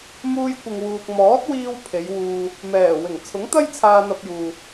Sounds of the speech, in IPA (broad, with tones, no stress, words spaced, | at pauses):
muː˧jkʷɪ˨ŋwuː˨k̚ mɔː˨˥t̚wiː˧w pʰe˨˧jwuː˧ | mɛː˨˩ wɪ˨˩ŋ t͡sʰʊ˨˥ŋt̪ɐ˥j t͡sʰaː˧n̪ɐ˧p̚juː˨